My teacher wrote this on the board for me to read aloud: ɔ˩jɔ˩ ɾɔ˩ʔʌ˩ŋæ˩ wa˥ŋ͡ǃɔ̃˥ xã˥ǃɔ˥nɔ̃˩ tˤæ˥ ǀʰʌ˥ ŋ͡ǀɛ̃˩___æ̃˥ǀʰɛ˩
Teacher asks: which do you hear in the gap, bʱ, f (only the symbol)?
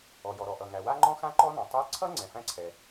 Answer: f